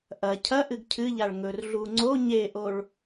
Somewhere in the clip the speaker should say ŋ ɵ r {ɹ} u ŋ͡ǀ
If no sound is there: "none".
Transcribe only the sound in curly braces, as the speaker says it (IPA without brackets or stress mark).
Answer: ɮ